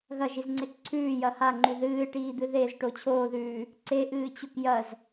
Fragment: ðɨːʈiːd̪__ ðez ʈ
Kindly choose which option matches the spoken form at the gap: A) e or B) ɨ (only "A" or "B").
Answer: B